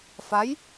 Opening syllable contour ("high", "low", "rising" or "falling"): rising